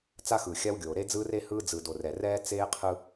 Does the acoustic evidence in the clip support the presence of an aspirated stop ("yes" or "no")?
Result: yes